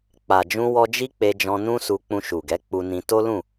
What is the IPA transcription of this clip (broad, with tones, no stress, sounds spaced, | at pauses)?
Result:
k͡p a˨ d͡ʒ ũ˧ w ɔ˧ d͡ʒ i˦ k͡p e˧ d͡ʒ ɔ̃˧ n ũ˦ s u˧ k͡p ũ˧ ʃ u˨ ɡ ɛ˨˦ k͡p u˧ n ĩ˧ t o˦ l ũ˦˨